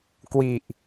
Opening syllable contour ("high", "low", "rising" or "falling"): low